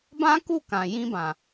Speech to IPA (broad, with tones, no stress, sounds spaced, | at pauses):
b ã˦ k u˦˨ k ã˨ j ĩ˧ b ã˨